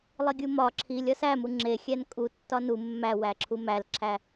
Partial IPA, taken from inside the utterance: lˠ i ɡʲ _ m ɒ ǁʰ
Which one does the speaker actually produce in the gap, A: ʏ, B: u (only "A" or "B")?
B